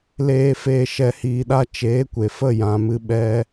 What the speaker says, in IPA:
l eː˨ f eː˨ ʃ ɛ˨ h iː˨ ɗ a˦ t͡ʃ eː˨˦ kʷ e˨ f ə˦˨ j ã˨ m ɨ˧ ɓ ɛ˦

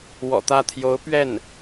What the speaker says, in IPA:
w ɔ̰˨˩ t̪ ä˥˩ t̪ʰ j o˧˥ ʊ̯ p ɥ ɛ˥˩ n

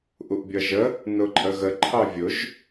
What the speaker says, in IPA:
ʔ u ʔ bʲ ʌ ʒ ə | n ʊ ǃʼ ə ɣ ə ǃʰ ɑ vʲ ʊ ʒ

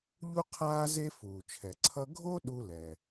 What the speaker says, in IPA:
ʎ u˥ qʰ aː˥ z e˥ f uː˩ t͡ʃʰ ɛ˩ ǀʰ ʌ˥ ɡʱ o˥ ɗ u˥ l ɛ˩

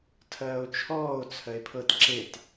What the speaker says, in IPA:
tʰ ɜː o̯ t͡ʃʰ ɔː o̯ t͡sʰ ɜ e̯ pʰ ɤ t ǁ e t

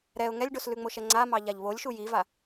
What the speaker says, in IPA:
ɾ ɛ ʊ̯ ŋ ɛ lʲ ɖ o s l ʉ ŋ͡m o ʃ ɛ ŋ͡ǀ a m ɑ ʎ a ʎ β o lʲ ʃ u j i v a

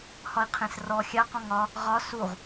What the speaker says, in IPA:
h ɒ i̯ qʰ ẽ s r ɔ xʲ a q ɔ̃ ŋ ɒ | ʁ ɒ s u ʁ

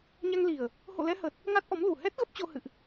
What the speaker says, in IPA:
ɲ a˧ ŋ l i˨˩ ə̯ | h o̰˧˨ l ɛ˧ h ə˨˩ t̚ | ŋ a˦˥ t̚ ʔ ɔ˨˦ m l u˨˩ h ɛ˦˥ t̚ ɣ ə˦˥ p̚ t͡ɕ o˧ h ɨ̰˧˨ ʔ

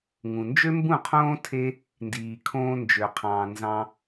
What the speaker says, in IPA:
ŋ ũ˨ n d͡ʒ ø˦ m b ũ˦˨ qʰ õː˦ tʰ e˦ | n d iː˨ kʰ õː˧ n d͡ʒ ø˨ qʰ ɑ̃ː˨ n z ɑ̃˧

